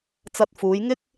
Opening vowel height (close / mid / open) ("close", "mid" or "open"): open